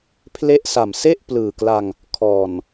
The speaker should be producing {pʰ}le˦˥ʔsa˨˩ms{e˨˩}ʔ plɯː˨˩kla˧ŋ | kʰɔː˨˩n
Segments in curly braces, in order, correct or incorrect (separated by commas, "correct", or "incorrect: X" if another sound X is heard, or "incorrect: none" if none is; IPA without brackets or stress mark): correct, incorrect: e˥˩